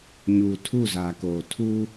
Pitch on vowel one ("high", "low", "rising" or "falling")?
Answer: low